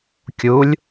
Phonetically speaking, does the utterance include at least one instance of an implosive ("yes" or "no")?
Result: no